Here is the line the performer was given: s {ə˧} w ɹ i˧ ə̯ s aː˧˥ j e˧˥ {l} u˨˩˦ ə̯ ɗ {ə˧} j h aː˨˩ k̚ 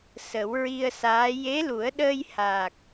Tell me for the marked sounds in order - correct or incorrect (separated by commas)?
incorrect, correct, incorrect